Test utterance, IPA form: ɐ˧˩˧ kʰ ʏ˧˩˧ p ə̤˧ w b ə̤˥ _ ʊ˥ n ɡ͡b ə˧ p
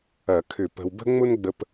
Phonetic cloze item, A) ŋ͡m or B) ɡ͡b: A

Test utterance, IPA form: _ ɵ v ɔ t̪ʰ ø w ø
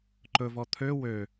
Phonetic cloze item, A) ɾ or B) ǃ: B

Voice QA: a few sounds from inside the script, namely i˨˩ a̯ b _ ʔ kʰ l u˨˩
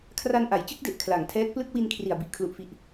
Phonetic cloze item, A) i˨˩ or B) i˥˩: A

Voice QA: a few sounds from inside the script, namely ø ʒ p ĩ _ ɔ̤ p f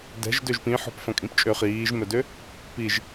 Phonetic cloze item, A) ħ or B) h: A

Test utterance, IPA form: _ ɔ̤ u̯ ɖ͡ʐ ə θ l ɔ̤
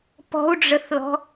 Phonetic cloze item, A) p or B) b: A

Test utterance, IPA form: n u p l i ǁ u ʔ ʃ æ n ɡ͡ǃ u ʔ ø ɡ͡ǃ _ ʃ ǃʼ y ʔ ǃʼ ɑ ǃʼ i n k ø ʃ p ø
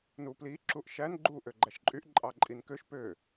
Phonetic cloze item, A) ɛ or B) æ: B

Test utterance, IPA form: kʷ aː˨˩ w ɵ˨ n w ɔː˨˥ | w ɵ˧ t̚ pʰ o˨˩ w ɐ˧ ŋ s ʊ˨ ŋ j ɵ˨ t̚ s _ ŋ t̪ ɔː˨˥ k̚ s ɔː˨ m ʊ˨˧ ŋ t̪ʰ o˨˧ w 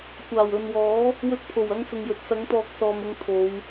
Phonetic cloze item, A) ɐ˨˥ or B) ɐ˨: A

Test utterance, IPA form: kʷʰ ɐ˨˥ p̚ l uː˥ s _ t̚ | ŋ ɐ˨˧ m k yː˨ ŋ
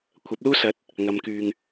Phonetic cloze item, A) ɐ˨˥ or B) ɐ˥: A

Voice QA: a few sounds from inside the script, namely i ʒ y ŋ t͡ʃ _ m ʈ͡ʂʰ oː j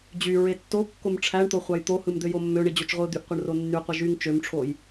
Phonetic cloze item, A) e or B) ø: B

